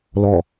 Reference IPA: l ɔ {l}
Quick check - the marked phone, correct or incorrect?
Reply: incorrect